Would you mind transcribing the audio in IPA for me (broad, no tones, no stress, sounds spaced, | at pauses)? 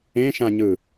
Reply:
ẽ ʃ ã ɲ ɯ